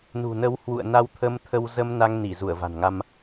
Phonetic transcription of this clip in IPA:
nṳ˨˩nə˨˦w hwṵ˧˨ə̯na˧w t̪ʰə˧mt̪ʰə˧w zə˧m na˧ŋ ni˧˩zu˧˩ə̯va̤˨˩nŋa˧m

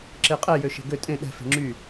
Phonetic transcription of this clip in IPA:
ǁeqʼɛ jøʃe̤ɡø tʼẽ ɗɛ̤ fe̤ŋ͡ǁy

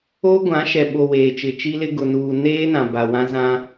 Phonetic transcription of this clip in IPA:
o˦ ɡʷã˨˦ʃɛ˨ ɓo˨ weː˨t͡ʃɪ˨t͡ʃi˦lɪ˦ ɡʊ˨nuː˨ neː˦nã˨ba˨ wã˦zã˦

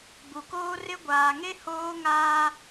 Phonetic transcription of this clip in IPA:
bu˨koː˦rɪ˦ ɡʷaː˨ŋe˦ hoː˦ŋaː˦

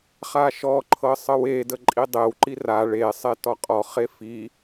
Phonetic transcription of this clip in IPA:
χaʃɔǃʰɤ sˤɤwedə ǃʼidˤewǃi ra ɭe sˤetɔqʼɔχe fi

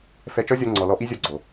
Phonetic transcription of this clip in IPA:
fɛ˧t͡ʃɔ˦zʲɔ˧ ŋ͡ǀɔ˨lɔ˧ʔi˦zʲɔ˧ ɡ͡ǀo˨

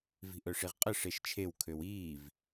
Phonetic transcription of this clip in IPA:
vi̤ʔœʂiʁqʼə ʂeʃt͡ʃʰew kʰøwiːv

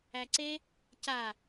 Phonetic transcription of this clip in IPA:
æǀe | ca

